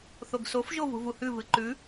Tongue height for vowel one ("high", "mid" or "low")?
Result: mid